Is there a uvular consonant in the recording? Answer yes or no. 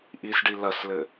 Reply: no